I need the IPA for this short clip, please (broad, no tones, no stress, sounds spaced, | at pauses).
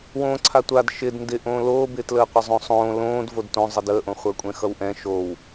w õː ǀʰ a tʷ a d ʃ ɪ d n d ɪ ʔ õː l oː b ɪː t l əː qʷ ɪ zˤ õ sˤ õː l õː d v o d t õ zˤ ɛ d əː ʔ õ χʷ əː kʷʼ ɛ̃ x ʌ w ʔ ɛ̃ ʃ o w